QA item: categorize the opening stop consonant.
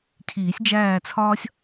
aspirated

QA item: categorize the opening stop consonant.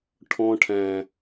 aspirated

